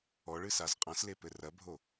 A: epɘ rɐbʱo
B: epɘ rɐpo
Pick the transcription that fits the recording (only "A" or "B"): A